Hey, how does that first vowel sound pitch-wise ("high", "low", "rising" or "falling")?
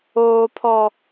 high